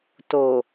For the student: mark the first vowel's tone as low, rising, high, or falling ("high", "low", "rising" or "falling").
low